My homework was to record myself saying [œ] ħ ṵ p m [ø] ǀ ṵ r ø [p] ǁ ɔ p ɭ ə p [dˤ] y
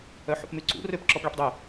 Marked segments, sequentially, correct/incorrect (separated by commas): correct, incorrect, correct, correct